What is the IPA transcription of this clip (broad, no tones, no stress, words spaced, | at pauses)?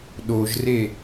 ɗoʒre